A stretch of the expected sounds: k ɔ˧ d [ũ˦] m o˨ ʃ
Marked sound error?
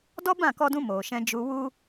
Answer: yes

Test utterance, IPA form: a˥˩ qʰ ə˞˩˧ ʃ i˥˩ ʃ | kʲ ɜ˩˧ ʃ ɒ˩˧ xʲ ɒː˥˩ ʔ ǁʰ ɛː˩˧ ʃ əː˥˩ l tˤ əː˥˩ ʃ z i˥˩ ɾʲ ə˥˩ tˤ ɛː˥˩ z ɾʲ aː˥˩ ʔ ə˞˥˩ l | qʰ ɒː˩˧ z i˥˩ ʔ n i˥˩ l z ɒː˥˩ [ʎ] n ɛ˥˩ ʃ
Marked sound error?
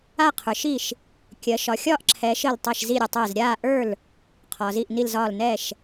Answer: yes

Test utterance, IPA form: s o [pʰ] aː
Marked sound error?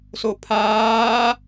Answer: no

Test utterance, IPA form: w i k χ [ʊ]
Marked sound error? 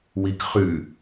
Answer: yes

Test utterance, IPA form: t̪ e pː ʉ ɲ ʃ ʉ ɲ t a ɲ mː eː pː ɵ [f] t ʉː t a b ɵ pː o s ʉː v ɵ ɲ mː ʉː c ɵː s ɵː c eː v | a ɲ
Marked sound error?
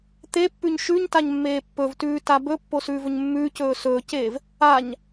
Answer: yes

